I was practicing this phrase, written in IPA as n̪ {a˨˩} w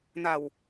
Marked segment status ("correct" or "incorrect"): correct